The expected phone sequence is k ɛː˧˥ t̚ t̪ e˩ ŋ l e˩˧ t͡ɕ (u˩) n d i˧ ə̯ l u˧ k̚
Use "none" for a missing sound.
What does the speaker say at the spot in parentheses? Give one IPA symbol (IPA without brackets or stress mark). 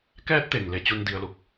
u˧